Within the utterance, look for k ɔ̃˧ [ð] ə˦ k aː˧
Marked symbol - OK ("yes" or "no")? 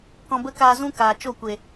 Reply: no